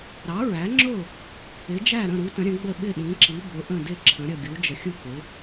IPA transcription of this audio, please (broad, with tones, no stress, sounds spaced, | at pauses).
ɾ ɑ˩˥ ɹ æ˩˥ ŋ͡ǁ ʊ˥˩ | ɪ˩˥ d͡ʒ æ˥˩ ɾ ə̃˥˩ ɾ u˩˥ t ə̃˩˥ ɾʲ ə̃˩˥ ɡ͡b ə˥˩ ɓ ɪ˥˩ ɗ ĩ˩˥ ǁ i˩˥ b ʊ˩˥ ʔ ə̃˥˩ d ɪ˥˩ ǁʰ ə̃˩˥ ɾʲ ʌ˥˩ ɡʲ u˩˥ d͡ʒ ə˩˥ xʲ u˥˩ k͡p ɪ˩˥